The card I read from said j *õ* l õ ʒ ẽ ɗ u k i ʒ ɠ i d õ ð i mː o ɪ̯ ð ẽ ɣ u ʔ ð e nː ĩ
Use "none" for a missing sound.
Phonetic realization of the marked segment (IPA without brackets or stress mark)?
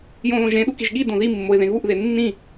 õ